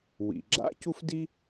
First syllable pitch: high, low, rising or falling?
low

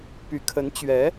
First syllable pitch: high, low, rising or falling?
low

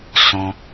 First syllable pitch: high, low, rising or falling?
high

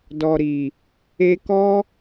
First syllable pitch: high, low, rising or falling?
low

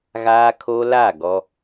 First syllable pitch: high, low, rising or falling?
high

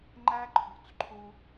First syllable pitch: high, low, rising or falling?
high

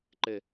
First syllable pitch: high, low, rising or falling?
low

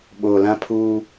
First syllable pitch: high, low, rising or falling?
low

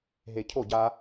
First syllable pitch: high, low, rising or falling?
low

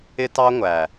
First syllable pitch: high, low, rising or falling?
high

